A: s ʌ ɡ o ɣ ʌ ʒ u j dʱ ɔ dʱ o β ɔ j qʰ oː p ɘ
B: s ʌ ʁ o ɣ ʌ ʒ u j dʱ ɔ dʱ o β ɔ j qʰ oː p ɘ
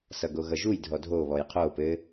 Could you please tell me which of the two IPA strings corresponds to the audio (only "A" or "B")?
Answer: A